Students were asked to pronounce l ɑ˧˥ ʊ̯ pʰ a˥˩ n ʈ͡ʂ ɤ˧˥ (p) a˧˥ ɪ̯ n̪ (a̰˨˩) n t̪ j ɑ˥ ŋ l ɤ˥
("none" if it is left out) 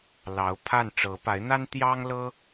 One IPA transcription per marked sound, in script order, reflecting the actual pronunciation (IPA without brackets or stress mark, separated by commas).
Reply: p, a˥